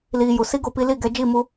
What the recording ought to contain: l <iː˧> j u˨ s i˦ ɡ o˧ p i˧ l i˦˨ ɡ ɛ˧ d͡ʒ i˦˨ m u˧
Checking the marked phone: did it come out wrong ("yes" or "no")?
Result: no